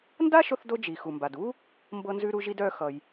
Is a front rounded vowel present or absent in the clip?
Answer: present